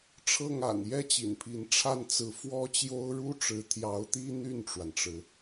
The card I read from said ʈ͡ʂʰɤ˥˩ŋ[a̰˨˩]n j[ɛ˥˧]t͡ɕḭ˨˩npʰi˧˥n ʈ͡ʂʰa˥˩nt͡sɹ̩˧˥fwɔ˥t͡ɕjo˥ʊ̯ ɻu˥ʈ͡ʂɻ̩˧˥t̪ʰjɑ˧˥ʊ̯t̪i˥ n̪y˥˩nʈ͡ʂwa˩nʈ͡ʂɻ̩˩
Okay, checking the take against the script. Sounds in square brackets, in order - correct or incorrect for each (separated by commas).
correct, incorrect